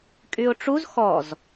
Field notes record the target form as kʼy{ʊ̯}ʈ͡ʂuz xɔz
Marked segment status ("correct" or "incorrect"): correct